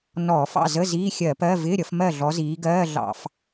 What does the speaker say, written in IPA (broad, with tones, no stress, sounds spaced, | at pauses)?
n ɔː˧˩˧ f ɑ̰˥˨ z ə˧˥˧ z iː˧˥˧ xʲ ɜ˧˩˧ p ɜ˧˥˧ v ɪː˧˥˧ ɾʲ ʌ˨˦ f m ɜ˥˨ ɮ ɔ˨˦ z iː˨˦ ɡ ɜː˧˥˧ ɮ ɑ̰˧˩˧ f